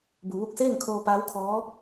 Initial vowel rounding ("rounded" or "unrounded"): rounded